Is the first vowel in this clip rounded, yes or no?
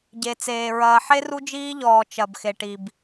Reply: no